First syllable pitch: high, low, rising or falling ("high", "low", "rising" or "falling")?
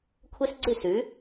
high